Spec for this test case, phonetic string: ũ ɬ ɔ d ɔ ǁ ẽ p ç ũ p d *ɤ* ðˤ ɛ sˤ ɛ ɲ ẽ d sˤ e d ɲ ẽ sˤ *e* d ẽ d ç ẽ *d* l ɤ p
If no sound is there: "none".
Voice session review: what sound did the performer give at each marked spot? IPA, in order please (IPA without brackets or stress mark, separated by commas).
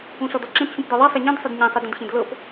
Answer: ɤ, ɛ, d